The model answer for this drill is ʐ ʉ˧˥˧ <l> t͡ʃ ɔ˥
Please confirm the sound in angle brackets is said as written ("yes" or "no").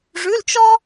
yes